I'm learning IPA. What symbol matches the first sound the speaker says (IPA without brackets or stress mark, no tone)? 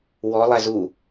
w